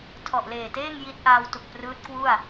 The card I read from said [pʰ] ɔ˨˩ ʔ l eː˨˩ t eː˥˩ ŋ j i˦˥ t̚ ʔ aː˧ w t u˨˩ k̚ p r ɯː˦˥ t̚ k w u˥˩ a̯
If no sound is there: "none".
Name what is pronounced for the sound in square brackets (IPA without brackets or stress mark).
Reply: tʰ